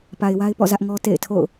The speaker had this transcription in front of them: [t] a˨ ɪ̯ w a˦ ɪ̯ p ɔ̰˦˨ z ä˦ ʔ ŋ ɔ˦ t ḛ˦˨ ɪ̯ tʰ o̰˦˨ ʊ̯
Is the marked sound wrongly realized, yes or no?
yes